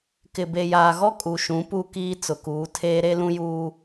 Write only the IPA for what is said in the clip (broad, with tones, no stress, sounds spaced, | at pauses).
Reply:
k ɪ˨ b e˨ j aː˨ ɣ ɔ˦ kʼ u˨ ʃ ũ˨˦ p u˦˨ k iː˦ t͡s ʊ˨ k uː˨˦ tʰ eː˦ ɾ e˦ l ũ˦ j uː˦